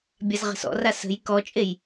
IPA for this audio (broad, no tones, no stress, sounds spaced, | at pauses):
bʲ a z ʁ ə̤ s ɔ̰ r a s ə̤ j k ɔ t͡ʃʼ e j